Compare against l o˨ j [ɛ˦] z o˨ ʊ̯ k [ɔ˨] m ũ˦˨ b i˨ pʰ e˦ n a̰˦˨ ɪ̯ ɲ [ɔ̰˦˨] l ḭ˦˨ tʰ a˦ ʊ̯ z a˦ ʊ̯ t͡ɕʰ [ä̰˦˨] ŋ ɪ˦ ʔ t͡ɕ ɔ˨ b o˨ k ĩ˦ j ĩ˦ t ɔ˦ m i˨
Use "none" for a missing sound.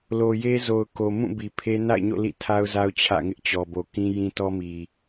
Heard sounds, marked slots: e˦, o˨, o̰˦˨, ä̰˦˨

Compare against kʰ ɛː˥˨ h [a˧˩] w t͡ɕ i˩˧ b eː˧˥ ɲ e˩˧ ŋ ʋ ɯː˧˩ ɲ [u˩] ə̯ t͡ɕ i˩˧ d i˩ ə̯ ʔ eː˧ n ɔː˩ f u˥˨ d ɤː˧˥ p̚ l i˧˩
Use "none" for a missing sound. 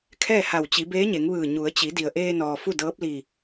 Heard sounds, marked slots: a˧˩, u˩˧

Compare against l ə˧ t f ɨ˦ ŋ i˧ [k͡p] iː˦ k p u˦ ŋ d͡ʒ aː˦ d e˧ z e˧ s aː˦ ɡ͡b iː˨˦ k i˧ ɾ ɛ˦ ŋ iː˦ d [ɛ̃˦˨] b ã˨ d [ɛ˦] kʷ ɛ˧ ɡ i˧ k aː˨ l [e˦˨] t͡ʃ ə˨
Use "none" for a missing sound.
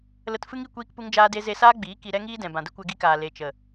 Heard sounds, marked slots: kʷ, ɛ̃˨, ə˦, e˨

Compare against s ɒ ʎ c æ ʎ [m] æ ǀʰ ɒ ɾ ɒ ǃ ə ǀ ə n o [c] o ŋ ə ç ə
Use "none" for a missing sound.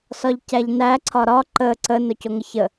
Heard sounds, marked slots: n, c

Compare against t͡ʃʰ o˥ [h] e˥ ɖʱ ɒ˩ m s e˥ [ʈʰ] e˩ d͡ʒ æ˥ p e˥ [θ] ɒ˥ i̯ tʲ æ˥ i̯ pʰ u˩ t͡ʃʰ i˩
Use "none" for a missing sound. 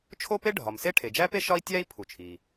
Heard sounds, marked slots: p, ʈʰ, ʃ

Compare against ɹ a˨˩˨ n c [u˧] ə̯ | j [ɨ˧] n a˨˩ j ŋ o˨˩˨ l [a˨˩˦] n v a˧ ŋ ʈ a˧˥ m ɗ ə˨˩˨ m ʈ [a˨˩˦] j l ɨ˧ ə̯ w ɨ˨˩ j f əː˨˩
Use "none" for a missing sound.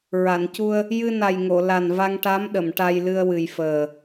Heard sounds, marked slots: u˧, ɨ˧, a˨˩, a˧

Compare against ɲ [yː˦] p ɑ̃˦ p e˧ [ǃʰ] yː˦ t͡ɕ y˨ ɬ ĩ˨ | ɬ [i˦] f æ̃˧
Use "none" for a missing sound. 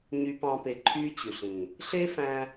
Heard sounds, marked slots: y˦, ǃʰ, e˦

